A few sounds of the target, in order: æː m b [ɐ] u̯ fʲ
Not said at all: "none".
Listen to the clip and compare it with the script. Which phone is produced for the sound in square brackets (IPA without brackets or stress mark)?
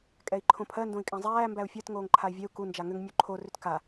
æ